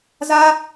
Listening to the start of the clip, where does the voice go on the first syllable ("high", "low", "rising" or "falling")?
high